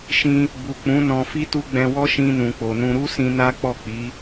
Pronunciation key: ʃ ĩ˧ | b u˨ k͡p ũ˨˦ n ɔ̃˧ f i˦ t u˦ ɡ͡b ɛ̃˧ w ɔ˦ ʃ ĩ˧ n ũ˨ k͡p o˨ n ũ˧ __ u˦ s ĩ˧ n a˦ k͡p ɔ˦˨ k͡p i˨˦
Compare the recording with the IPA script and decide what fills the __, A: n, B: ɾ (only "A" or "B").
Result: B